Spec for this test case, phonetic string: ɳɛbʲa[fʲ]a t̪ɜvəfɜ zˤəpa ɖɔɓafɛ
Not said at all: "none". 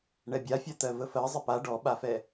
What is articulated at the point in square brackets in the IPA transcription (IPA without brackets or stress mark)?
fʲ